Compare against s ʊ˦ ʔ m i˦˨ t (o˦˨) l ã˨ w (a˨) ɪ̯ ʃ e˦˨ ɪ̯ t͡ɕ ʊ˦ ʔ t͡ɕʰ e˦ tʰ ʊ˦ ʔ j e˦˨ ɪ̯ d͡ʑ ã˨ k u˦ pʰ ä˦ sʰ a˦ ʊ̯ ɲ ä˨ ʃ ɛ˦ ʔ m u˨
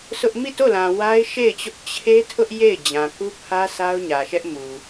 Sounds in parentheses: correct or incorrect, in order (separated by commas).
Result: correct, incorrect